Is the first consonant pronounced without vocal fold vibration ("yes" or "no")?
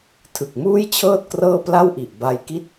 yes